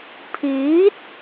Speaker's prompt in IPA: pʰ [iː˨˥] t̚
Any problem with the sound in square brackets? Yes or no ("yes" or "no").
no